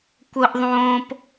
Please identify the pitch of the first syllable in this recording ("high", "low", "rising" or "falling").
high